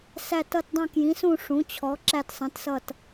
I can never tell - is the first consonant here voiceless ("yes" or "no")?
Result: yes